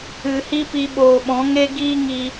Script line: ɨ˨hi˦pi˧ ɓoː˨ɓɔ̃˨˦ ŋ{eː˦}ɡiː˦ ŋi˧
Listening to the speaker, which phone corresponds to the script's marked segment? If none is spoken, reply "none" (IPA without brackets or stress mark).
e˦